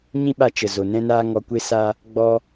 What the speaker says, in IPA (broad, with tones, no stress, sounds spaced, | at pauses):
ɲ ĩ˦ ɓ a˧ t͡ʃ ə˨ z o˨ n ɛ̃˦ n aː˦ ŋ ɔ˧ kʷ e˦ s a˦ | ɡ͡b ɔ˦